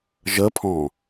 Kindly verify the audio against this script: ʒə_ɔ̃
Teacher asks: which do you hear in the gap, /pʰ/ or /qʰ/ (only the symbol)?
pʰ